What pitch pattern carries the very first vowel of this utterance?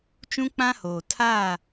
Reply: high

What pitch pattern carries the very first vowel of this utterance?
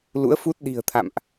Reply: rising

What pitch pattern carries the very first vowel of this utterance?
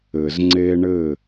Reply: low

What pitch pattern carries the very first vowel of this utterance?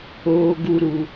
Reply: high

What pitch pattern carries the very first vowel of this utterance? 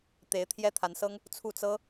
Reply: rising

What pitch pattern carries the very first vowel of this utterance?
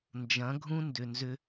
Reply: rising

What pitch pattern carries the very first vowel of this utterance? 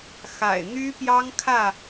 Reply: low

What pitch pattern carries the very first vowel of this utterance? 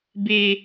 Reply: high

